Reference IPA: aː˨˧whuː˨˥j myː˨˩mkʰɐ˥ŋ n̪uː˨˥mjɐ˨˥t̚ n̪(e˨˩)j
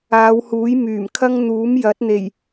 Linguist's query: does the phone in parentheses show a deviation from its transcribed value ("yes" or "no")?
no